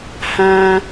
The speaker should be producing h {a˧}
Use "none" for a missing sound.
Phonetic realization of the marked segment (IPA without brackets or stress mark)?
ã˧